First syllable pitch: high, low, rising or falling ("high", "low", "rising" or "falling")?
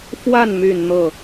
falling